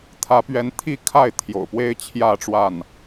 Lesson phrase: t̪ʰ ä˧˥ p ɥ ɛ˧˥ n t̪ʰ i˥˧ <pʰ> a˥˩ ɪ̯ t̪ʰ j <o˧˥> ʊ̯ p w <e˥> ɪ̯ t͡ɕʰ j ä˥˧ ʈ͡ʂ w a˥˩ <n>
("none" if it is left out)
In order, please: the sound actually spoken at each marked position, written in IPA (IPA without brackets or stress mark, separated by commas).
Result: kʰ, o̰˨˩, e˥, n